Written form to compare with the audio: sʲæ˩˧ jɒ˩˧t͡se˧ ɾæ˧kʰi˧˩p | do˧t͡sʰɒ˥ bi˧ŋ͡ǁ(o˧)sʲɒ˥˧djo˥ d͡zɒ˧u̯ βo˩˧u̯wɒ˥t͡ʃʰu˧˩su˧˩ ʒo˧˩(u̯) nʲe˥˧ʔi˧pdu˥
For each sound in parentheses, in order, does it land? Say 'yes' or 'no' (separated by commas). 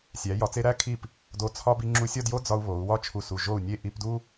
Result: no, yes